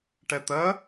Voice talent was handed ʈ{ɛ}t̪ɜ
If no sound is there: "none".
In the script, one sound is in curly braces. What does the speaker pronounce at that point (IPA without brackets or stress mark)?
ɛ